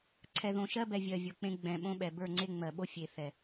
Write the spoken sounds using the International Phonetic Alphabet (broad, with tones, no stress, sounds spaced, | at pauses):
ǀʰ ɛ˨ ð õ˨ ʃ ɜ˦ b ɛ˨ vʲ ɜ˨ vʲ o˨ k͡p ẽ˦ ɡ͡b ɛ̃˨ ɓ õ˦ ɓ ɛ˨ b ə˞˦˨ ŋ͡ǀ e˦ ŋ͡m ɜ˨ ɓ o˦ fʲ e˨ θ ɛ˨